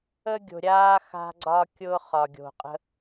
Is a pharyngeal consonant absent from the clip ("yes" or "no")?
yes